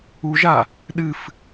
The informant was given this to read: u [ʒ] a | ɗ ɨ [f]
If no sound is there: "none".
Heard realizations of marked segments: ʒ, f

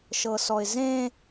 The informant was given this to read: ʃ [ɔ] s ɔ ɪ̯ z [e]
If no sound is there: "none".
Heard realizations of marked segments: ɤ, ẽ

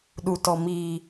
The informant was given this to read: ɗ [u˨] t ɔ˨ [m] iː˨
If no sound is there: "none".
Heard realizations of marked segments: u˨, m

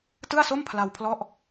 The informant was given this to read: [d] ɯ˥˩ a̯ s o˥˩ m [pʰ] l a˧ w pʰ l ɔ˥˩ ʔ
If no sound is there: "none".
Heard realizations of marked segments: t, pʰ

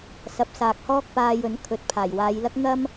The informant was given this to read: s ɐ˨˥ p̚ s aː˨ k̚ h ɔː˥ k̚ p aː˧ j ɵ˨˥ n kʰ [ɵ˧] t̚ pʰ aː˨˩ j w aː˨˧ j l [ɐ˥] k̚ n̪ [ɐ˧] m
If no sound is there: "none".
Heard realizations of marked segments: ɵ˨˥, ɐ˥, ɐ˥

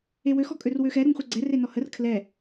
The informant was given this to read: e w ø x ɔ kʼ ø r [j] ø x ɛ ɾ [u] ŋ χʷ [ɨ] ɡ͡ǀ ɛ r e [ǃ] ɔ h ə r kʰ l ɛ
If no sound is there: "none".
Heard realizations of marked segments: w, u, ɛ, n

